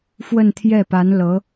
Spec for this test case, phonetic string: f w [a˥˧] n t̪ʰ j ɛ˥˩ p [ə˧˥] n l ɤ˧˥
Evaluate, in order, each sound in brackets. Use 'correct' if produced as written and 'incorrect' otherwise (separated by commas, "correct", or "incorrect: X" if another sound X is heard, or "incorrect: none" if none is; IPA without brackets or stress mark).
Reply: incorrect: ə˥˧, incorrect: a˧˥